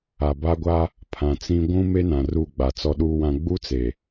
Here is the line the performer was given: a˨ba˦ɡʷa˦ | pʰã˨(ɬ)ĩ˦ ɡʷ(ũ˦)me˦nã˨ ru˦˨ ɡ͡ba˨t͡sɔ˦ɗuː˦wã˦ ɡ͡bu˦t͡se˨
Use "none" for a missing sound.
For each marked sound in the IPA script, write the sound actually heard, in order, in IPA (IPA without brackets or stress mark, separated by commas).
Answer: t͡s, ũ˦